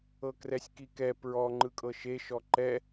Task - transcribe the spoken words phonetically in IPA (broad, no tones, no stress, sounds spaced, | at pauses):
ɤ k r ɛ sʲ k i k ɛ p ɹ ɔ ŋ͡ǃ ɯ kʼ ɤ ʃ e ʃ ɔ ǃ ɛ